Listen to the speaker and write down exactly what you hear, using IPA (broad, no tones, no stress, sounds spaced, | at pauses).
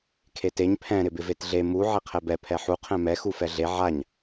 kʰ e t e ɲ pʰ ɛ̃ ɾ ɪ b ɪ v e t ɮ e m u ʕ e qʰ ɛ b ɛ pʰ ɛ ħ u qʰ ɛ̃ m ɛ x u f ɛ ɮ e ʕ a ɲ